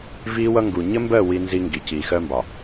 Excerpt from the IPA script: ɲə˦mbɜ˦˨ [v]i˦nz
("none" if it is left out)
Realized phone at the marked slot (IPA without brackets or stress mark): w